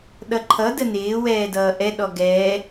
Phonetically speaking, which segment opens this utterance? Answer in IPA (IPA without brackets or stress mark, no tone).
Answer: ɗ